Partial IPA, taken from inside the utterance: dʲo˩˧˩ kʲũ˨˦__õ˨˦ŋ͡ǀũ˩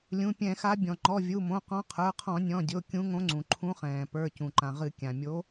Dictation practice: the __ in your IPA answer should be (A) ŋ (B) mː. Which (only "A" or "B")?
A